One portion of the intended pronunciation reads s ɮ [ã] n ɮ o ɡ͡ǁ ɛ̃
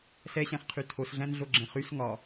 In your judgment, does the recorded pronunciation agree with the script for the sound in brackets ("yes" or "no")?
no